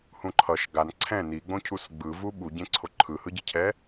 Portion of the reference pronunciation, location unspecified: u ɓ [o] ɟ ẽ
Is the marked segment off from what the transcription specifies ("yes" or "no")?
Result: yes